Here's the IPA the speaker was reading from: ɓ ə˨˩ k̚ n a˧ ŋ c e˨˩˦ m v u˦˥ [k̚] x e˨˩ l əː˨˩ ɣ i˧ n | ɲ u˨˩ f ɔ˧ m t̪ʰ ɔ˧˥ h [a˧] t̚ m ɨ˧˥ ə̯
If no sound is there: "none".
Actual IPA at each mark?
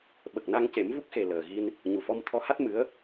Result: k̚, a˦˥

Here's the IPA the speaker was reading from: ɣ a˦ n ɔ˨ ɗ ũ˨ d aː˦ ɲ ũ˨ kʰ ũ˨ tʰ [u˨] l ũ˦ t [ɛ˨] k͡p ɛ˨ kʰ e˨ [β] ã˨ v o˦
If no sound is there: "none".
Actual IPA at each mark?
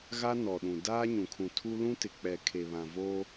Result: u˦, ɪ˨, β

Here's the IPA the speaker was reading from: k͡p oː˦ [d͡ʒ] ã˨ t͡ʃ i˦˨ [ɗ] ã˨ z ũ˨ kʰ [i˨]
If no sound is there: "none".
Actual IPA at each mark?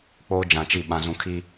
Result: d͡ʒ, ɓ, i˦

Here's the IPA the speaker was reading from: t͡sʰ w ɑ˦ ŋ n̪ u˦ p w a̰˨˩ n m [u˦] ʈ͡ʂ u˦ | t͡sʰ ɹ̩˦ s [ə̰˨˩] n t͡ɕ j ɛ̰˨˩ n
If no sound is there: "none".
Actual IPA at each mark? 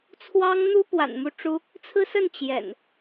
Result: u˦, ə˥˨

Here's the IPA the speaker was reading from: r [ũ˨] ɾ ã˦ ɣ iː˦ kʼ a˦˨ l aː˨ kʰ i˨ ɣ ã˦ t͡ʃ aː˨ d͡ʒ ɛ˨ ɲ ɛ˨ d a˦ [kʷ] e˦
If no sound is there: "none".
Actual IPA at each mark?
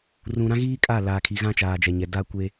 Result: ũ˨, kʷ

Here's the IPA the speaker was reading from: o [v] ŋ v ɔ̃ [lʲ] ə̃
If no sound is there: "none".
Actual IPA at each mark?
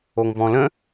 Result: none, l

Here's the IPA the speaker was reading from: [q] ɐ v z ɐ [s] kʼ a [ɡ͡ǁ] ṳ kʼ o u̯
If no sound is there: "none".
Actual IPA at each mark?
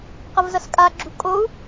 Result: q, s, ɡ͡ǁ

